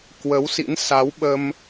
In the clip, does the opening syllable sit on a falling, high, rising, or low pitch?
rising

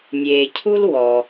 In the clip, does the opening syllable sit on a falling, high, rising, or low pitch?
low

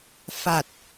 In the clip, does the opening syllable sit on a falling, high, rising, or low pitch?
low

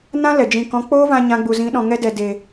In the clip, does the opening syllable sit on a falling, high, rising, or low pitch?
high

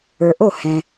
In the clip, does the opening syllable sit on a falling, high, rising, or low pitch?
low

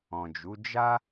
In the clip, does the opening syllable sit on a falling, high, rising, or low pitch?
low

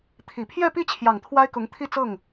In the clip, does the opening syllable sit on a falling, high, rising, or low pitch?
low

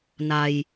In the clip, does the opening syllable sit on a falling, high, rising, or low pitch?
low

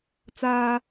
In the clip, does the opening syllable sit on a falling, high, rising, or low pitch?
low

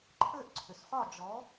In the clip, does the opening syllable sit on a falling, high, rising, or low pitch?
falling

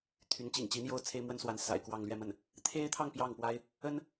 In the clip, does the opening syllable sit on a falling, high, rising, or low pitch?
rising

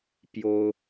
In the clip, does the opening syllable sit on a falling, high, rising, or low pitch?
high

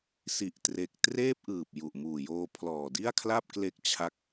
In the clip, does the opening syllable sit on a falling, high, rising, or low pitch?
low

